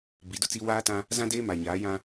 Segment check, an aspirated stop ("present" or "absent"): absent